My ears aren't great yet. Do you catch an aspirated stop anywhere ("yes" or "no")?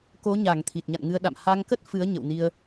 yes